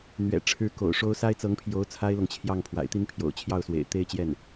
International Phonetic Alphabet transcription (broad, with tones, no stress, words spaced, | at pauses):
n̪ɥɛ̰˨˩ʈ͡ʂʰɻ̩˧˥ko̰˨˩ʊ̯ʂo˥ʊ̯ sa˥ɪ̯t͡sɤ˧˥ŋpʰjo˧˥ʊ̯ t͡sʰa˥ɪ̯lɤ˨ŋt͡ɕʰjɑ˥˩ŋ pʰwa̰˨˩ɪ̯t̪i˥npʰjo̰˨˩ʊ̯ t͡ɕʰjɑ˥˩ʊ̯swḛ˨˩ɪ̯t̪e˥˧ɪ̯t͡ɕjɛ˥˩n